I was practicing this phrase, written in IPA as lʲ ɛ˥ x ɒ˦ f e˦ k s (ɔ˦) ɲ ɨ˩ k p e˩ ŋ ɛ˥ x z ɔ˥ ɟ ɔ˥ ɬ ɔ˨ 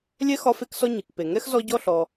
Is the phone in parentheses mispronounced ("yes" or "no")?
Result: no